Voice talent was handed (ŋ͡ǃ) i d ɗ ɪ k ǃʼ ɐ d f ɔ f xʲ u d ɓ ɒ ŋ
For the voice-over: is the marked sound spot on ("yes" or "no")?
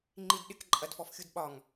yes